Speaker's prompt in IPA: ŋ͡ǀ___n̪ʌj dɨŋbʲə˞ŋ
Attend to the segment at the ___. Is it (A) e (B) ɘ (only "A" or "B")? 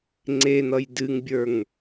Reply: A